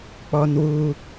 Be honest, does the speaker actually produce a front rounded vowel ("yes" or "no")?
no